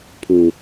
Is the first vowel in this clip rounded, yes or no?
yes